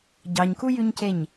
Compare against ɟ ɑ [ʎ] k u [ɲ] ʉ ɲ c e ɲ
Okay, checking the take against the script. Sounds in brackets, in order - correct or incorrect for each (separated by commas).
incorrect, incorrect